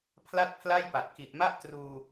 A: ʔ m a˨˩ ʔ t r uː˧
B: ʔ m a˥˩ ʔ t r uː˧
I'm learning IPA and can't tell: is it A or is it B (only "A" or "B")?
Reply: B